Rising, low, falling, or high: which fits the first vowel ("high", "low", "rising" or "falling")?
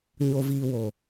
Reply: low